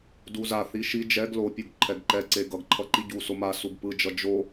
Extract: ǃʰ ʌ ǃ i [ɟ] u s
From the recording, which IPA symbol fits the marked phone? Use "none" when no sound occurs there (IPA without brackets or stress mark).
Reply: ɟ